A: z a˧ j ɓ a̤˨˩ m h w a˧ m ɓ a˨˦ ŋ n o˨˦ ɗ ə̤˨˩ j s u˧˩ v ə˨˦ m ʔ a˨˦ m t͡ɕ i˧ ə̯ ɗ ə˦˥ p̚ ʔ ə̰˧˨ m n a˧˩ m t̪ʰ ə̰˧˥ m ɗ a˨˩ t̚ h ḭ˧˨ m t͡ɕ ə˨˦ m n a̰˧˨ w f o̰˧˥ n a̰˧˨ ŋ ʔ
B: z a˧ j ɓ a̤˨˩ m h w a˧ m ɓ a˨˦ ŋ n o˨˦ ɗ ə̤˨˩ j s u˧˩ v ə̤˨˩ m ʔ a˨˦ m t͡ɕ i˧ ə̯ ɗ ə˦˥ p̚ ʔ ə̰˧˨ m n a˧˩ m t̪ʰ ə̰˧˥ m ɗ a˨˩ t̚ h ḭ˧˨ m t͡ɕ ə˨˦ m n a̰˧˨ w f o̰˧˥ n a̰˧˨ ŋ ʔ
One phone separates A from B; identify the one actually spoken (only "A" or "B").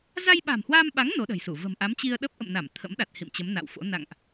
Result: B